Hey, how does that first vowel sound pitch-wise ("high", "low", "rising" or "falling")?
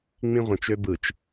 high